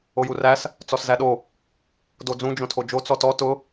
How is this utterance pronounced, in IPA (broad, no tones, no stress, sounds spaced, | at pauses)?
o j u r æ s | t͡s ɔ s z æ ɗ o | d o d͡z ũ d͡ʒ õ tʰ o d͡ʒ o t͡s ɔ t ɔ t ʊ